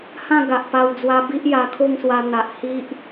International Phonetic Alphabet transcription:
h ã˥˧ ɡ a˨ ʔ p a˧ w d͡z w a˧ b i˦ ʔ j a˧ kʰ o˥˧ ŋ s w a˧ n̪ a˨ ʔ h i˦ ʔ

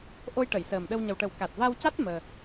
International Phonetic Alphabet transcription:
ʔ o˧ j ʈ ə˨˩˨ j s əː˨˩ m ɗ ə˧ w ɲ ə˨˩ w ʈ ə˨˩˦ w k a˨˩ t̚ v a˧ w c a˦˥ t̚ m əː˧

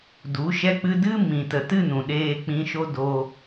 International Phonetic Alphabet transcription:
d u˨˦ ʃ ɛ˦ k͡p ɨ˦ d ɨ˦ m ĩ˨ t ə˨ t ɨ˦˨ n ũ˨ ɗ eː˧ k͡p ĩ˧ ʃ o˦ d o˧

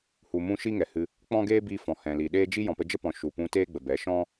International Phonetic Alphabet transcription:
h u˨ m ũ˧ ʃ i˦ ŋ ɛ˨ h ɨ˧ | k͡p ɔ̃˦ ɡ eː˦ b i˧ f ɔ̃˨ h ɛ̃˨ l i˨ ɗ eː˦ d͡ʒ i˦ j ɔ̃˨ p ə˧ d͡ʒ ə˦ p ɔ̃˨ ʃ u˨ p ũ˧ t eː˦ ɡ͡b ə˨ b ɛ˨˦ ʃ ɔ̃˦

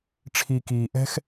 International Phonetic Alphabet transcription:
ʈ͡ʂʰ i˨ k iː˨ ʔ ɛ̤˦ x

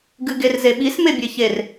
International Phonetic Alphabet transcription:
ɡ ɨ ɡ e r z e ɓ i s m e bʲ e ç e r

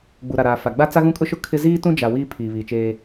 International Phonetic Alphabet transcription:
ɡ͡b u˨ ɾ a˨ ɾ aː˨ f a˨ ɡ͡b a˦ t͡s a˦ ɣ ũ˦ kʼ ʊ˦ ʃ ʊ˦ kʰ ɪ˦ z iː˦ t ũ˦ d͡ʒ a˨ w iː˦ pʰ iː˨ β iː˨ t͡ʃ eː˦

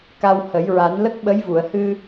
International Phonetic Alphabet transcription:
k a˧ w h ə˨˩˦ j ɹ a˨˩˦ n l ə˦˥ k̚ ɓ ə˧˥ j v u˨˩˨ ə̯ h ɨ˧

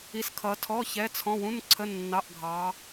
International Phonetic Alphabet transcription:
i˨˦ s kʰ ʌ˨˦ tʰ ɔ˧˥˧ ç ɛ˧˥˧ t͡sʰ ɔ̃˧˥˧ w ũ˧˥˧ n ǀʰ ə˧˥˧ nː ɑ˧˥˧ ʔ ɡʱ ɑ˨˦

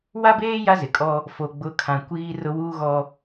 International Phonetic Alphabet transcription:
w a˦ b eː˦ j a˦ z ɪ˨ kʼ ɔ˦ | f o˨ ɡ͡b ʊ˨˦ kʰ ã˨ kʷ iː˦ r ʊ˦ w uː˦ ɣ ɔ˦

